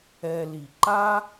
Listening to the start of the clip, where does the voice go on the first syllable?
low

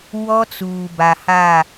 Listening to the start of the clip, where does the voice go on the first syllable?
high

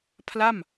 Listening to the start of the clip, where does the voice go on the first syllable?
falling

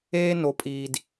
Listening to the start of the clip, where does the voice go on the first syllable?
high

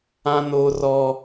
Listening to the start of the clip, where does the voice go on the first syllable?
high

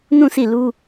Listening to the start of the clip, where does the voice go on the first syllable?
falling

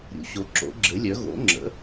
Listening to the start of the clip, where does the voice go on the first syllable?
rising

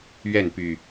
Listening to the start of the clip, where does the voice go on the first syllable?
falling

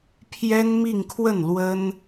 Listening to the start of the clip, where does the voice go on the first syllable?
high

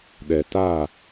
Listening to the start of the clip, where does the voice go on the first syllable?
low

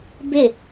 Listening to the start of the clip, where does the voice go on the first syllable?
falling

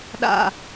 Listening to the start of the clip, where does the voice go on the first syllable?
low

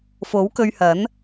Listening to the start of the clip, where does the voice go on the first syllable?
rising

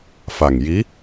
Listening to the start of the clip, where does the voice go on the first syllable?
low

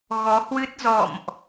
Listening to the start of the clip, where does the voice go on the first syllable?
rising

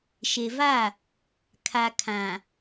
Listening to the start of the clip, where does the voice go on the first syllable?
low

